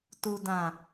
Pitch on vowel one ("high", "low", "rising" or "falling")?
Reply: low